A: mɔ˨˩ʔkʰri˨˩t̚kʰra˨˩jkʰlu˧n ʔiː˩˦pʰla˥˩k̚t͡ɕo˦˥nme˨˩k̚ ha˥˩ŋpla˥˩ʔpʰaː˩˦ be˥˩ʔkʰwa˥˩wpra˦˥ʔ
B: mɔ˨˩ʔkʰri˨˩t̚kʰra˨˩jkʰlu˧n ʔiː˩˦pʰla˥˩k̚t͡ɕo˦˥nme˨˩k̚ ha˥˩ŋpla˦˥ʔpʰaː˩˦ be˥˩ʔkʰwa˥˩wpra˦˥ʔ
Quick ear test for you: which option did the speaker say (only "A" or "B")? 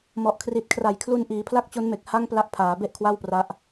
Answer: B